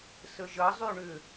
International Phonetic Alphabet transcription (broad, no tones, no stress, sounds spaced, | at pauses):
s ə ʒ ɐ zˤ y ɳ ʏ